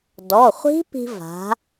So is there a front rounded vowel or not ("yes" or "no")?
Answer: no